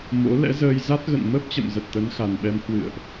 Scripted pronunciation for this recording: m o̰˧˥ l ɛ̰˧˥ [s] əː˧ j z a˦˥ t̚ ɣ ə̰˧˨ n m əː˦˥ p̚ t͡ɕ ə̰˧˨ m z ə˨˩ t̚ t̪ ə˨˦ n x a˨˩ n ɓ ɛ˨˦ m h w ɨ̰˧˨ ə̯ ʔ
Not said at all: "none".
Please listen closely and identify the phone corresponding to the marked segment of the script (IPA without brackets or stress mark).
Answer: z